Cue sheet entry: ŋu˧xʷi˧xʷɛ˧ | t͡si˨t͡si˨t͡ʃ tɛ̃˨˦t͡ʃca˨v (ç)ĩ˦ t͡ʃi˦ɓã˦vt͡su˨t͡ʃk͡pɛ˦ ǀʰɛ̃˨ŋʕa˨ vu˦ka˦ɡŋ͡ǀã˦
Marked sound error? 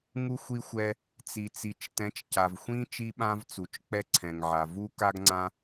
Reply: yes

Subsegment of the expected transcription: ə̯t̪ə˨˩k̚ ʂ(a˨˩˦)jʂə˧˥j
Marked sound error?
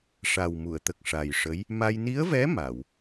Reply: yes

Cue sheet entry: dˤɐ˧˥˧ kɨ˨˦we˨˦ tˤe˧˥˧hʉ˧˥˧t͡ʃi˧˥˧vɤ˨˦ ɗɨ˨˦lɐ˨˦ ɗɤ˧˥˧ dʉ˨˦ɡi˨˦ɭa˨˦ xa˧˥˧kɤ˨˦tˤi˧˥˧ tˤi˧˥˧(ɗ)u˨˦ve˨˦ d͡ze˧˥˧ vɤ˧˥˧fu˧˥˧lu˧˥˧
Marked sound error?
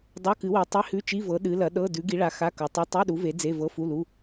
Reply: no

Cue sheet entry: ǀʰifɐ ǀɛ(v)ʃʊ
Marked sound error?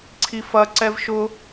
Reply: no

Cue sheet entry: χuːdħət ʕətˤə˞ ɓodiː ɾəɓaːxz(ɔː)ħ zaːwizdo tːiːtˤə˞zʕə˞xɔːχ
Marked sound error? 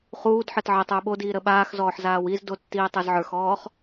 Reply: no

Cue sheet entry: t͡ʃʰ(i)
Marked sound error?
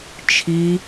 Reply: no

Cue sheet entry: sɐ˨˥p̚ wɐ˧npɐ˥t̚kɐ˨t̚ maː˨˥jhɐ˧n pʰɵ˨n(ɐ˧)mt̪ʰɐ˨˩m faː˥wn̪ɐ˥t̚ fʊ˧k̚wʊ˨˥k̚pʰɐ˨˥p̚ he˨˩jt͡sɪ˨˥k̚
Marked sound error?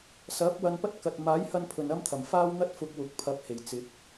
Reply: yes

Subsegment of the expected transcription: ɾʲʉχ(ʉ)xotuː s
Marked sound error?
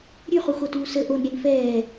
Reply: yes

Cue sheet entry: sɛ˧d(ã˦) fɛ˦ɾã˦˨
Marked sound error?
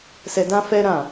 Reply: no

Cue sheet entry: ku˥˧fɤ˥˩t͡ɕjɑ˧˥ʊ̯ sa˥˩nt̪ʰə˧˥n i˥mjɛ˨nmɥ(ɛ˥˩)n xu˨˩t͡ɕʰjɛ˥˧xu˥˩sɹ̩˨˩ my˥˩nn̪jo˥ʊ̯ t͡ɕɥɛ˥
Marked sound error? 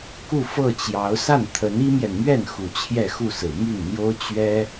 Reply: no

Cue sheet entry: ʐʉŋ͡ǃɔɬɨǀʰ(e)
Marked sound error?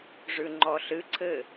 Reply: yes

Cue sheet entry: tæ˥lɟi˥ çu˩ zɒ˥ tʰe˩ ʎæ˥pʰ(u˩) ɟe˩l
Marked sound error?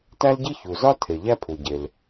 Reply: no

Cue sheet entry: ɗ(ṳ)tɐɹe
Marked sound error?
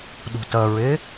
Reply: no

